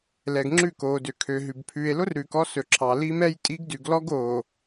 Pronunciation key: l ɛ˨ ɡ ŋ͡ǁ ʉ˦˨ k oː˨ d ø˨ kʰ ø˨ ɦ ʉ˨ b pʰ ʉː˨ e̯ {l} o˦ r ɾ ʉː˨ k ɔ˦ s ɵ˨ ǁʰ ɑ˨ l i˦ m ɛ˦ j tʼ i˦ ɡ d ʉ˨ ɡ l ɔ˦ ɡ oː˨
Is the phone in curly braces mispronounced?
no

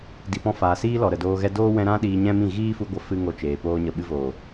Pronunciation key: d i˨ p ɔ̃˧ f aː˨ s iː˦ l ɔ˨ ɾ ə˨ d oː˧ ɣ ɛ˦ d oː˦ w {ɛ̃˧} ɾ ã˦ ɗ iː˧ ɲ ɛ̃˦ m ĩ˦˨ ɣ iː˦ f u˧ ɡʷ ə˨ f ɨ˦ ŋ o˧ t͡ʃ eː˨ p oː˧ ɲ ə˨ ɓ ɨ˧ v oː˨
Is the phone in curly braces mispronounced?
no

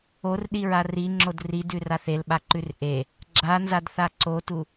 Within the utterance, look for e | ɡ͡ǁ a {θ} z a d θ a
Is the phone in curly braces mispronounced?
yes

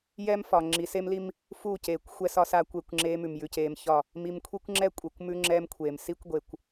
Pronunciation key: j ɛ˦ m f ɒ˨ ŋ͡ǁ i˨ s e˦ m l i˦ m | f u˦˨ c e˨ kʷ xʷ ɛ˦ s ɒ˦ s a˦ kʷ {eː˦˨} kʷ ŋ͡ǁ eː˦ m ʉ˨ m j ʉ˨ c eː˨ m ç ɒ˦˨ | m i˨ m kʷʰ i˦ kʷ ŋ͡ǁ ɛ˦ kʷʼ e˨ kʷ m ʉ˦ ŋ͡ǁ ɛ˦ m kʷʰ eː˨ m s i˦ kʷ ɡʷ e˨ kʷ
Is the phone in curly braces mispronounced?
yes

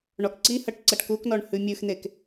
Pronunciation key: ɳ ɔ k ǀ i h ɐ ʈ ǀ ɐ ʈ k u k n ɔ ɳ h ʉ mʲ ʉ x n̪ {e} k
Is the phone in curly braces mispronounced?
no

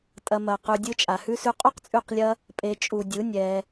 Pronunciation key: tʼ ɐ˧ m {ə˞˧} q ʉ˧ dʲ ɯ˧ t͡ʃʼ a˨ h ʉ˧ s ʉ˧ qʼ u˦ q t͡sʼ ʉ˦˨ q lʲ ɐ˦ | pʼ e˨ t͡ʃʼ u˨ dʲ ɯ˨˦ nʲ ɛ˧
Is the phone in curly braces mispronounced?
yes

